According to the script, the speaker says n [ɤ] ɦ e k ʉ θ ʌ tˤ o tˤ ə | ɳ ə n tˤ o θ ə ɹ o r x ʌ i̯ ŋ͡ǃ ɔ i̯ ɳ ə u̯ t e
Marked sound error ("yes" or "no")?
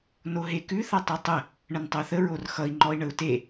yes